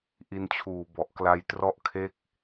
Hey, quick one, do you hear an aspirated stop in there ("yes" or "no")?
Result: yes